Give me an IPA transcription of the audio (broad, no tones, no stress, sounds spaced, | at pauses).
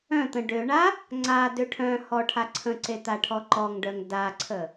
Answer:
œ̃ t̪ ə̃ ɖ ø ɳ a | ŋ͡ǀ a d ø ʈʰ œ̃ h ɔ ʈʰ a ǀʰ ə̃ ǀ e t̪ a ʈʰ ɔ ǃ ɔ ŋ ɖ œ ŋ d a ǀʰ ə